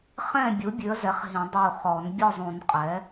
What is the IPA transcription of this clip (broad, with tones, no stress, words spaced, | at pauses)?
χɛ̃˥˨bʲu˩˥ bʲʉ˩˥ə̯zɛ˩˥χ ɦĩ˨˩˦ dˤu˧˩χɔ˨˩˦n bʲɔ˥˨zˤũ˨˩˦n qʼɛ˩˥